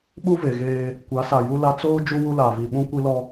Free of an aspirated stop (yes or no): yes